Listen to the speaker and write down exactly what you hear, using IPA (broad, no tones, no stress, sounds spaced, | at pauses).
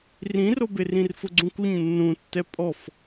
r ĩ r o b e r ĩ r f ʊ ɡ͡ǀ ũ k u ɲ nː ũ tː ɛ pʼ ɔ f